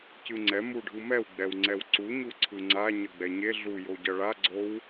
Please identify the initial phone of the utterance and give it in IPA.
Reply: c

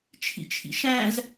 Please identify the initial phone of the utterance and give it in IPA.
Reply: t͡ʃʰ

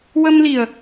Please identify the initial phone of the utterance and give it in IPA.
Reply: w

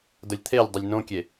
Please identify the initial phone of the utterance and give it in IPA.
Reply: d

